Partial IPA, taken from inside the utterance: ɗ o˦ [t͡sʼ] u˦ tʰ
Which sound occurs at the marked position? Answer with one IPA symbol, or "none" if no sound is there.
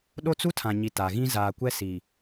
t͡s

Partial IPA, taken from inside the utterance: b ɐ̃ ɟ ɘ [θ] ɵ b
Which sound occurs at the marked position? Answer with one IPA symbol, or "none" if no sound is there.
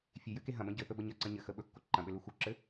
θ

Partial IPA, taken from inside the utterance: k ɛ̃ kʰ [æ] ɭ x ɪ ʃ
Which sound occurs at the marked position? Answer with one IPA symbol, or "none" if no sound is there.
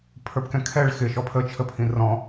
ɛ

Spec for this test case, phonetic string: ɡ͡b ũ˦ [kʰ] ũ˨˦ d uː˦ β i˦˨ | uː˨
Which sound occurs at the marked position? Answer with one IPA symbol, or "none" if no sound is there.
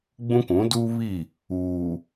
k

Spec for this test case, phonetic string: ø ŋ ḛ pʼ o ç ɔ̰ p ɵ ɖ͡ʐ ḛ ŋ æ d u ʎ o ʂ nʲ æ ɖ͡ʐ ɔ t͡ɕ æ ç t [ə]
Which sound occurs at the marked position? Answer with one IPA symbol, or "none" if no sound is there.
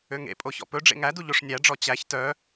œ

